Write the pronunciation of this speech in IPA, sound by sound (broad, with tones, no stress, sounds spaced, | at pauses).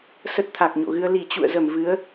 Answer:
s ə˦˥ t̚ t̪ʰ a˨˩ k̚ ɲ o̰˧˨ ɣ ɨ˧ ə̯ l i˧˩ t͡ɕ ṵ˧˨ ə̯ z ə˧˩ m v ɨ˨˦ ə̯